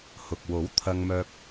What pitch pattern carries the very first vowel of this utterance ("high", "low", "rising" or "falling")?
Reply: low